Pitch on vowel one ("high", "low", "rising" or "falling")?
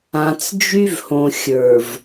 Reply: low